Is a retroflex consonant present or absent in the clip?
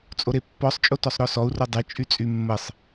absent